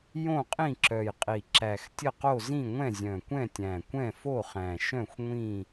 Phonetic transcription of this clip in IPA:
j õ˥˨ qʼ ĩ˥˨ ǁ œ˨˩ j qʼ i˨˩ ǁ æ˨˩ x tʲ ə˥˨ q o˥˨ z ĩ˥˨ ŋʷ ɛ̃˥˨ zʲ œ̃˨˩ kʷ ɛ̃˥˨ tʲ æ̃˨˩ kʷ ɛ̃˥˨ f o˥˨ χ æ̃˨˩ ʃ œ̃˥˨ xʷ ŋʷ ĩ˥˨

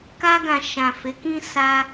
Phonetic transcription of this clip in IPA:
k a˧ ɡ ã˨ ʃ ã˨ f e˨˦ k ĩ˦ s a˧

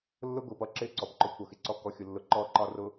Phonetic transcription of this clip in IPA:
lː ʊ˦ ɡ ʊ˨ p ʌ˨ ǁ ɪ˦˨ ǀ ɔ˨ p ǃ ʊ˦ kʷʰ ʌ˨ x ɪ˨ ǀ ɔ˦ k ɔ˨˦ xʲ ʊ˨ lː ʊ˨ ǃ ɔ˦˨ ǃ ɒ˦ r ʊ˨

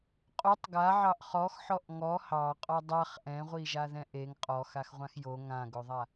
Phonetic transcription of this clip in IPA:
qʼ o tˤ ɡ a ʕ ɑ ʔ χ ɔ x ħ ɔ ʔ ŋ ɔ h ɑ qʼ ɔ dˤ a χ ʔ ɛ̃ ʁʷ i ʒ a ð ɛ̃ ʔ e ŋ qʼ ɔ x a x ʁʷ ã x j o ŋ ã ɡ o ðˤ a

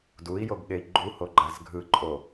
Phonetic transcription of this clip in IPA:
d u i̯ j o ɡ ɠ e i̯ ɡ͡ǃ u h o ɡ͡ǃ a z ɡʱ ɯ ǃʼ o

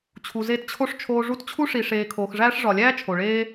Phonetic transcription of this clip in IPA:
t͡ɕʰ u˨ z e˦ t t͡ɕʰ o˥ ʂ t͡ʃʰ oː˦ ʐ u˦ t t͡ɕʰ u˥ ʂ i˨ ʂ eː˨ kʰ oː˨ x ʐ æː˦ ʂ ʐ ɒ˨ lʲ æː˥ t͡ʃʰ o˩ ɭ eː˦

